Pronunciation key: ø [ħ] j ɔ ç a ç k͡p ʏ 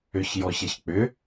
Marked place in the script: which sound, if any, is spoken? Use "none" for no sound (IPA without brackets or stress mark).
ç